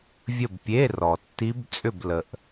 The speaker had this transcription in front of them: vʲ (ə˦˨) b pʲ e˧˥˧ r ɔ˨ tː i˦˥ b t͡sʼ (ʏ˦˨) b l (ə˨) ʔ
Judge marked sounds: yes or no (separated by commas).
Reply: yes, yes, yes